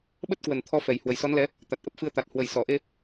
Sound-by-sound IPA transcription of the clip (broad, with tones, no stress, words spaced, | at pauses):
ɓə˦˥t̚kwə˨˩n t̪ʰɔ˧fɛ˨˩j hwə˨˩jsɔ˨˦nlɛ˨˦ | t̪a˨˩t̚ ʔə˦˥p̚fɨ˧ə̯t̪a˨˩t̚ hwə˨˩jsɔ˧˩ʔe˧